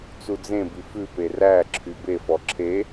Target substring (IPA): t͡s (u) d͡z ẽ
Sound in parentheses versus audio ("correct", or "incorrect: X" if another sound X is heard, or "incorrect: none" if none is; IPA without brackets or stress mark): correct